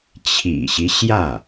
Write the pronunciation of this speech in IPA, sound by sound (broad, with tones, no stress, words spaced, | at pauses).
t͡ɕʰḭ˨˩ɕi˦ ɕjä˥˩